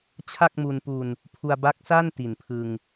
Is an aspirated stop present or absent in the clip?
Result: present